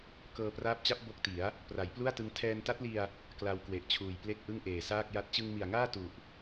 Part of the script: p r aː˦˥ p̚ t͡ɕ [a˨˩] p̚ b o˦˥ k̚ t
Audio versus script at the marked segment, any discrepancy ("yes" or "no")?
yes